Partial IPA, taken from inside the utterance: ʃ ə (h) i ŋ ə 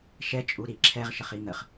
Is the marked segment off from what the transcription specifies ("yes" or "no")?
yes